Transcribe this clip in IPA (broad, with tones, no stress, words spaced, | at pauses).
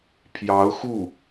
pʰjɑ˧˥ʊ̯xu˥˩